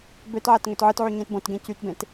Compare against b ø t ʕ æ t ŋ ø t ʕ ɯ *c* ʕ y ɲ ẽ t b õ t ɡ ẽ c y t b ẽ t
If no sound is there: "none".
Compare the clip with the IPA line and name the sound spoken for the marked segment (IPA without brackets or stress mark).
t